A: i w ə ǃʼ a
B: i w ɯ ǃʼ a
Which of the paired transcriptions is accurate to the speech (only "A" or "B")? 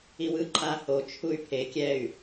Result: B